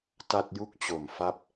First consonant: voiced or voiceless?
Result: voiceless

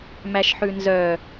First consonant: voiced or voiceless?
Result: voiced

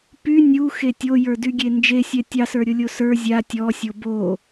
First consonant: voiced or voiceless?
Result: voiceless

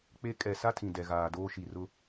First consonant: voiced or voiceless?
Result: voiceless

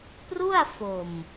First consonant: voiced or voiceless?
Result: voiceless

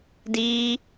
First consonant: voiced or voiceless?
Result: voiced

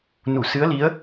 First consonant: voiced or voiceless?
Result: voiced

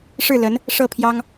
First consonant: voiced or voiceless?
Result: voiceless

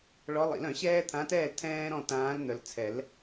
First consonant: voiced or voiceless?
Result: voiced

